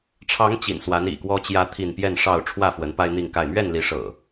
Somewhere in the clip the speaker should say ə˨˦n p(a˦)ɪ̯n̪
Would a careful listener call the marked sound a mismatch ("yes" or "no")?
no